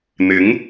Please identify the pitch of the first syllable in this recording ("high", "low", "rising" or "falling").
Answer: rising